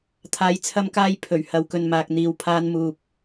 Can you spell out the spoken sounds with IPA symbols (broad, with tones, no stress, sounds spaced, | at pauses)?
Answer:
t̪ʰ aː˨˧ j t͡sʰ ɐ˧ m k aː˧ j pʰ ɵ˨˩ ɥ h ɐ˨˧ w k ɵ˨ n m aː˨ k̚ n̪ iː˨ w pʰ aː˧ n m uː˨ p̚